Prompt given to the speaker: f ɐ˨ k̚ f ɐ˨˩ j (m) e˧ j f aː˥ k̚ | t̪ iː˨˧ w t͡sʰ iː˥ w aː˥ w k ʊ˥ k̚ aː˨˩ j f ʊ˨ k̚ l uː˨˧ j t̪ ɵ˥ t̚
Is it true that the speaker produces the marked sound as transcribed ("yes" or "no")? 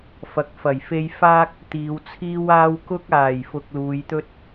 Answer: no